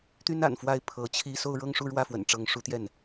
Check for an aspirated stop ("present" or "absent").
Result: present